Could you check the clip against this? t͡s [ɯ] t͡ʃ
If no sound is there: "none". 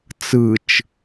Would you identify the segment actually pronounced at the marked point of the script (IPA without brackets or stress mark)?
ɯ